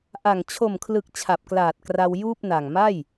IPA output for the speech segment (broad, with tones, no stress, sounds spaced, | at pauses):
ʔ a˨˩ ŋ t͡ɕʰ o˨˩ m kʰ l ɯ˨˩ k̚ t͡ɕʰ a˨˩ p̚ k l aː˨˩ t̚ k r a˧ w j uː˥˩ p̚ n a˨˩ ŋ m a˥˩ j